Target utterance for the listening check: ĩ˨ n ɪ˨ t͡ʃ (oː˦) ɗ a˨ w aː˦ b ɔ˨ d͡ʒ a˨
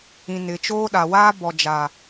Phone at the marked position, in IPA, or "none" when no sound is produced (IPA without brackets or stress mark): oː˦